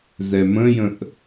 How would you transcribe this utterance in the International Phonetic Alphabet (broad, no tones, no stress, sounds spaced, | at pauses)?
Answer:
z ɛ m ə̃ j ə̃ ʔ